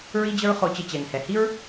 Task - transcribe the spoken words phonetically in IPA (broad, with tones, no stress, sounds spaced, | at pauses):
ɹ i˦ d͡ʑ ə˦ ɹ χ o˧ t͡ɕ ə˧ t͡ɕ ɛ˨ ŋ h ɛ˨ h i˦ ɹ